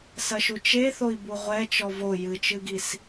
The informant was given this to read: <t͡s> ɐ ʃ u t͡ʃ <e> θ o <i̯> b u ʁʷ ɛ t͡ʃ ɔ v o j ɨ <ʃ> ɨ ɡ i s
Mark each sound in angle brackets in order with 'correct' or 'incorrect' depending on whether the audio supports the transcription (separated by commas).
incorrect, correct, correct, incorrect